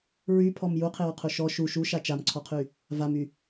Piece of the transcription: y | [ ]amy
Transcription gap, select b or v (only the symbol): v